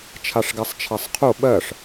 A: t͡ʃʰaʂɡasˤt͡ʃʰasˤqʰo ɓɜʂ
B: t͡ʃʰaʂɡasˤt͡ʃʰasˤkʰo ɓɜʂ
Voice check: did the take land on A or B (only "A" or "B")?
A